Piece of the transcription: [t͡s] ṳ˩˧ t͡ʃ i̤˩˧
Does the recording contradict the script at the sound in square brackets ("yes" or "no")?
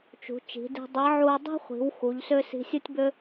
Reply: yes